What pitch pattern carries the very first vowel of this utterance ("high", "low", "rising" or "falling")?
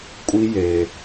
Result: high